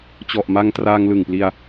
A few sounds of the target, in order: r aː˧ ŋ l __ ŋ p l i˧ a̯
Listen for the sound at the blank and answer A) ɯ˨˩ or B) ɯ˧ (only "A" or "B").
A